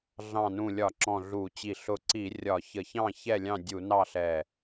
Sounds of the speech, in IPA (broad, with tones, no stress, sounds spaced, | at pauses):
ɮ ɑ̃˧˩ n ũ˧˩ lʲ ɒ˧˩˧ ǁ ɔ̃˧˩ ɮ u˧˩˧ t͡ɕ i˧˩ ɬ ʊ˧˩ ǀ i˧˩˧ rʲ ɒ˧˩˧ ç ə˧˩˧ ç ɑ̃˥˨ ç ɛ˥˨ lʲ ɑ̃˥˨ dʲ u˧˩˧ n ɑ˥˨ ɬ ɛ˧˩